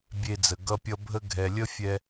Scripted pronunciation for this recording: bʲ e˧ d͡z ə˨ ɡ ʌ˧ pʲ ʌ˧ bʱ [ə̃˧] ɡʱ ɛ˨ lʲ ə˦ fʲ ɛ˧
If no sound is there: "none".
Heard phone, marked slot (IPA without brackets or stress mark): ə˧